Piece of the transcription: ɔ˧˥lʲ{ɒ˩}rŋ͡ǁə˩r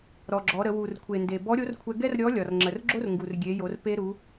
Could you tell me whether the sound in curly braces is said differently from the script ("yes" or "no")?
no